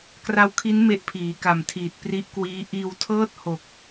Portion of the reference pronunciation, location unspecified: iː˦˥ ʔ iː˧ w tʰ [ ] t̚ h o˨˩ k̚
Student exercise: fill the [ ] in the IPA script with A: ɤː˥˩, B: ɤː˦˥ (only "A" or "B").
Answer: A